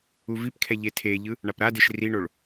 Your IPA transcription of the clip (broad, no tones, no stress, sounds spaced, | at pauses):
u v i p kʰ ɛ ʎ e tʰ e ʎ ɯ | ɳ a p ɾ a d e ʃ r i ɳ o ɭ